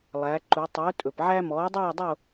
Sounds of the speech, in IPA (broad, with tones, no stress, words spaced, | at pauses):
lˠæ˨˥ǃu˨˥ tˤɵː˨˥tʼɵ˩pʕæ˥ mɔː˨˥dˤœː˥˧dˤo˥˧